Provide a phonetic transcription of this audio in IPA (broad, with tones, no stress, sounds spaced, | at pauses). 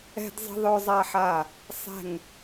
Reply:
ɛ̤˥ d zˤ ə̤˥ ðˤ œ˥ zˤ a˥ ħ a˥˩ | sˤ ɛ̤˥˩ ŋ